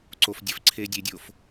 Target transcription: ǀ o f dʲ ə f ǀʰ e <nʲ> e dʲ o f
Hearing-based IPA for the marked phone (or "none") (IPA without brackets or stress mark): dʲ